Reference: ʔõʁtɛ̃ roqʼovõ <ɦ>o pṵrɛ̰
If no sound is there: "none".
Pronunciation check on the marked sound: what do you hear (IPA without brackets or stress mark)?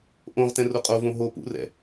ɦ